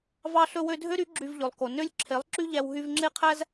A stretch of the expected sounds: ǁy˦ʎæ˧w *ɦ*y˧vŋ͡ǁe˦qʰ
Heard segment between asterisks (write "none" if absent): ɦ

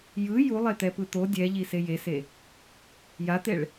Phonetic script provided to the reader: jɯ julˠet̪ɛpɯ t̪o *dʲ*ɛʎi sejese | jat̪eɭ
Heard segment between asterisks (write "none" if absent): dʲ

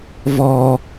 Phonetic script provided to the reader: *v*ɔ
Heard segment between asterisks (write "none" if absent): v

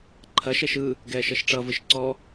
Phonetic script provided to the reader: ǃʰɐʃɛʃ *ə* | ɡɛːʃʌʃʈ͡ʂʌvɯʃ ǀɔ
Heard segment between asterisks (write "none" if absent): ɯ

